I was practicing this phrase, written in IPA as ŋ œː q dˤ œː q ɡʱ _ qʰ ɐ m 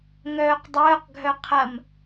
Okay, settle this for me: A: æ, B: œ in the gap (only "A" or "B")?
B